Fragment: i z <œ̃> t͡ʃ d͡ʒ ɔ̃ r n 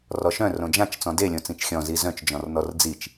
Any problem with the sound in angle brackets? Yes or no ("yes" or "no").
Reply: no